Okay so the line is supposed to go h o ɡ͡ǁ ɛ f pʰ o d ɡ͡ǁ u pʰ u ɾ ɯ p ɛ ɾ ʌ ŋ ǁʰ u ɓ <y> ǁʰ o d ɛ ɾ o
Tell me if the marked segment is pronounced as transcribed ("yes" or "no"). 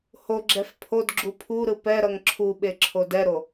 no